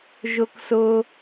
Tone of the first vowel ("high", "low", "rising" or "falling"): low